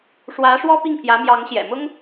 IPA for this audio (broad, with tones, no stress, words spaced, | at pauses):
ʂwä˧˥ ʂwɔ˥pi˥˩ŋpʰjä˧˥ mjɑ˧˥ŋɕjɛ̰˨˩ mʊ˥ŋ